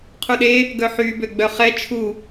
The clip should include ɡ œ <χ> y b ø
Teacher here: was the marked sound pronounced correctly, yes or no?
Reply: no